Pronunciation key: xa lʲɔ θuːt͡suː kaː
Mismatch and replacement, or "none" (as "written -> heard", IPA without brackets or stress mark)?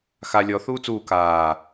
none